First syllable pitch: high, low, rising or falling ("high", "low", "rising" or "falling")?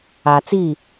low